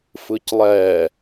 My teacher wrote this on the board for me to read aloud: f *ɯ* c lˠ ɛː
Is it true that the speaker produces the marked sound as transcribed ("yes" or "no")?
yes